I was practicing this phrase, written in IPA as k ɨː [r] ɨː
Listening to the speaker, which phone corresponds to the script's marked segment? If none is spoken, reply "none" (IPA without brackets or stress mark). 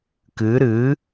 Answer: ɾ